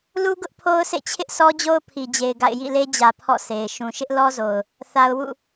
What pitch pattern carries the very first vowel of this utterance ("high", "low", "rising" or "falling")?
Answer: high